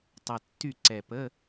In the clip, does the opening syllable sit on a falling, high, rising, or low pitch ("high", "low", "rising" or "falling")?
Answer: low